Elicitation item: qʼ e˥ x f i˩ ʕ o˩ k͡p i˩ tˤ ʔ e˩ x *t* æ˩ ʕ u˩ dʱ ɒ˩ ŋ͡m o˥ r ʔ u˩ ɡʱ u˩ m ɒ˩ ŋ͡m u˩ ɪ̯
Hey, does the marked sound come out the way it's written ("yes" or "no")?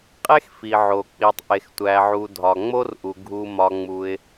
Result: no